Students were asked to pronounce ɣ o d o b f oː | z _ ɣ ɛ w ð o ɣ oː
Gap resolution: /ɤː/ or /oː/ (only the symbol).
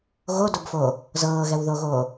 ɤː